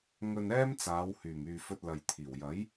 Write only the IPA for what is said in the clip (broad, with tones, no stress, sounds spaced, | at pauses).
ŋ ɵ˧ n ɛː˥ m t͡s aː˨˧ w h yː˨˩ m yː˨ f ɵ˧ t̚ l ɐ˨ j t̪ʰ iː˨˩ w j ɐ˨˥ j